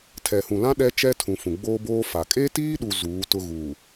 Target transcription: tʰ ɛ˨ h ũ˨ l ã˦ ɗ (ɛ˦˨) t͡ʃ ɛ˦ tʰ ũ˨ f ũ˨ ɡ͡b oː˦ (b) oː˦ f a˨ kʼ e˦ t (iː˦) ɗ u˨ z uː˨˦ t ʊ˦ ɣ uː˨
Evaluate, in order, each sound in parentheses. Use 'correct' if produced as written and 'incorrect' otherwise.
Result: incorrect: ɛ˦, correct, correct

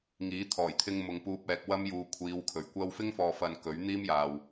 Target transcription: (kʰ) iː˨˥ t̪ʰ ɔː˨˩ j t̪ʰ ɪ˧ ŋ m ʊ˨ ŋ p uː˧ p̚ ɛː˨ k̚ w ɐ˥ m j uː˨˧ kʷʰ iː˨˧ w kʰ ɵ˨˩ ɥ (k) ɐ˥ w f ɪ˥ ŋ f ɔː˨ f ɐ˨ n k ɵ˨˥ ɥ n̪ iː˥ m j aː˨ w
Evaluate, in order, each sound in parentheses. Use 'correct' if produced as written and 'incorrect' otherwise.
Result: incorrect: ŋ, incorrect: kʷ

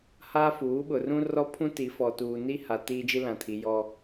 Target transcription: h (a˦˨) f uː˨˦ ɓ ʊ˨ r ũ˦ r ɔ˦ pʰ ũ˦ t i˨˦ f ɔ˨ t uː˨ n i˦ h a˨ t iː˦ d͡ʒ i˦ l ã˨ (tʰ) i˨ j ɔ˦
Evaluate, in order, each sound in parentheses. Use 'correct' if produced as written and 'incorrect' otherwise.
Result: incorrect: a˦, correct

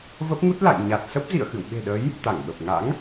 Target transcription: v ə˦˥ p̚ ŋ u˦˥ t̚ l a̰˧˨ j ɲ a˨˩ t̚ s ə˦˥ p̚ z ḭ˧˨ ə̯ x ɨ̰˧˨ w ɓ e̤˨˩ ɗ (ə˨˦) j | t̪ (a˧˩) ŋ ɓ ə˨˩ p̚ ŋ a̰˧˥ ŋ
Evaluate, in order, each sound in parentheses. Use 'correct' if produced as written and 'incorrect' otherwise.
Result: correct, correct

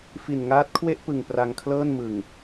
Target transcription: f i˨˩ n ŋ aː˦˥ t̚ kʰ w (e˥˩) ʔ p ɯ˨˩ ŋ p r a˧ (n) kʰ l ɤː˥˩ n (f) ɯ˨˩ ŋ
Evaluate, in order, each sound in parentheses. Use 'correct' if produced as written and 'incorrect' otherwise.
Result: correct, incorrect: ŋ, incorrect: m

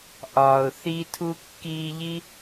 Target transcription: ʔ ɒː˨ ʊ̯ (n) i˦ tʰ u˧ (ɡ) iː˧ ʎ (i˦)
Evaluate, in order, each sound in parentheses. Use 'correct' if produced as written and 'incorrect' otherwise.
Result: incorrect: θ, incorrect: kː, correct

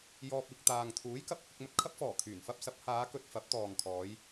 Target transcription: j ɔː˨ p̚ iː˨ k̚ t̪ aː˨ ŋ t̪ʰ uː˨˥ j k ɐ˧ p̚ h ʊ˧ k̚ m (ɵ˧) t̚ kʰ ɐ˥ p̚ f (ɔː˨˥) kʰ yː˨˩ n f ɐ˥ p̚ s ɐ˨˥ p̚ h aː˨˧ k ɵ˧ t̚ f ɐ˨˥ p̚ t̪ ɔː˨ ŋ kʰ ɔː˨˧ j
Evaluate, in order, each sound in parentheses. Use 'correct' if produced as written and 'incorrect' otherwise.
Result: correct, incorrect: ɔː˨˩

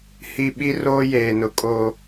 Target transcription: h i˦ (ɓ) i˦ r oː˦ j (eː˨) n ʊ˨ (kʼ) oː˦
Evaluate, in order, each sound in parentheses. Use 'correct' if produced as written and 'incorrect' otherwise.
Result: correct, correct, correct

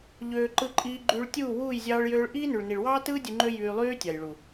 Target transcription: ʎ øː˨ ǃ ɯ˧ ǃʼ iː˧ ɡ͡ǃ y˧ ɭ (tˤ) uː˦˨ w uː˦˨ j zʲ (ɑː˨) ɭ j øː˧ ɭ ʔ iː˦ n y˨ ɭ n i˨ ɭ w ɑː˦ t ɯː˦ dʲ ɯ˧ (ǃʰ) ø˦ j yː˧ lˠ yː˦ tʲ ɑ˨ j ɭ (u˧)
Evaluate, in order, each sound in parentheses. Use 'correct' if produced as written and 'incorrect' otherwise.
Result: incorrect: tʲ, incorrect: ɑː˧, incorrect: ŋ͡ǃ, incorrect: u˨

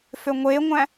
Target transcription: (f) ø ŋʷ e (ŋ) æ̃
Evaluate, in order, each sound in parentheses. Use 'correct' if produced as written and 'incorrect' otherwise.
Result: correct, incorrect: ŋʷ

